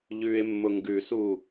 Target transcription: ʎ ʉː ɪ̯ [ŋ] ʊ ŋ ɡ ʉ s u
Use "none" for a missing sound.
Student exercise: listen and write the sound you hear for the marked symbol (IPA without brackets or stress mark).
mː